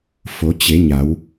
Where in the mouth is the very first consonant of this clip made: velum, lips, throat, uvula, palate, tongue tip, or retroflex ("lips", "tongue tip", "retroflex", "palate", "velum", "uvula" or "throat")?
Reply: lips